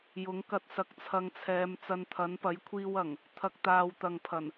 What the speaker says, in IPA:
jʊ˨˥ŋkɐ˧t̚ sɐ˧k̚t͡sʰɐ˧ŋt͡sʰɛː˨˧m t͡sɐ˧nt̪ʰɐ˨˥npɐ˨˥j kʷʰiː˧wɐ˨˩ŋ | t̪ʰɐ˨k̚t̪aː˨wt̪ɐ˨ŋpʰɐ˨˩n

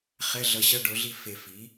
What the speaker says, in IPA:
χɛ˧˥˧ɮʌ˧ɕʌ˧˥˧ ɖo˩˥ɮi˥˨fe˧˩ fi˩˥

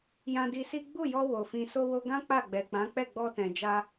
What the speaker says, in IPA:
jã˧di˧si˦ ɡ͡bu˦˨jɔ˧ wo˨fĩ˧ so˧wo˧ɡã˦ k͡pa˦˨ɡ͡bɛ˨k͡pã˨˦ k͡pɛ˦˨ɡ͡bɔ˧tɛ̃˨ d͡ʒa˧

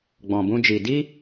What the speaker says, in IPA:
ɡ͡bɔ̃˧bũ˦d͡ʒi˧ di˦

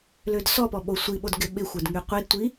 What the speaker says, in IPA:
lødsɔpɔ ɓosʷiɓod ɡɪɓɪxʷɛd ŋyqʷidtʷi

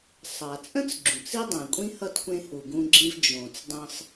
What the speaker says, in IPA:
sˤa˩t͡sʼə̃˥t͡s ɡ͡ǁũ˩t͡si˥ dˤẽ˩kʷʼĩ˥hʌ˦t kʷẽ˥hu˨ ɡũ˦ɡ͡ǁĩ˦v d͡ʒõ˨t͡sdˤə̃˦sˤ

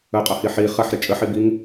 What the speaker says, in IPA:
əqʼʌhi ħi χɐħɾɪ t͡ʃʼəħibiŋ

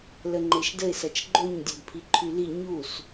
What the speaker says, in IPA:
ləŋ͡ǃeʃdəɪ̯ sɐt͡ʃɡ͡ǃoɲ dʲœdpʰiǃʰyli ɲus

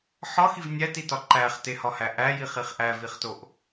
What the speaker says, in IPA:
ħɒxiv nʲætitɒ ǃæχtehɒhæ ʔæjiχiχ ʔæviχtoʔ

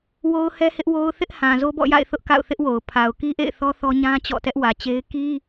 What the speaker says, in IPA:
wo˦ʊ̯hɛ˦hɪ˦ʔwo˦ʊ̯ θɪ˦ʔhã˨ zo˦bɔ̰˦˨ja̰˦˨ɪ̯ θʊ˦ʔka̰˦˨ʊ̯θɪ˦ʔwo˨ʊ̯ pʰa˨ʊ̯ki˦ʔḛ˦˨ɪ̯θɔ˦ θɔ˦ ɲã˦ t͡ɕɔ̰˦˨tɛ˦ʔwä˨t͡ɕe˦ɪ̯ ki˦

